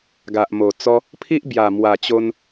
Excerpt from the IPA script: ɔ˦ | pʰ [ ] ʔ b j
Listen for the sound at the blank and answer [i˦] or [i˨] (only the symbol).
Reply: i˦